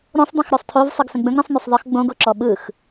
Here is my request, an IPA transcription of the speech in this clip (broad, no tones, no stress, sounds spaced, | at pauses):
ɾ õ sˤ dˤ õ x ɾ o sˤ tʰ o v sˤ ɯ ɡ s ə̃ ɡ͡b ə̃ ɡ ɾ ə̃ sˤ n y sˤ ðˤ ə x ɡ͡b õ ɡ o ǁ ɔ ɓ ɯ x